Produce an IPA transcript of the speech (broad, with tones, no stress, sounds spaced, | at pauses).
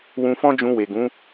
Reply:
w ũ˧ f ɔ̃˦ d͡ʒ ũ˧ w e˨ ɡ ũ˨˦